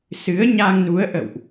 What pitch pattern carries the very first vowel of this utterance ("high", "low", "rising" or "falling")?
rising